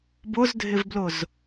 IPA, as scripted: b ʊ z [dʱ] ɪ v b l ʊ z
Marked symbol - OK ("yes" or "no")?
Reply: yes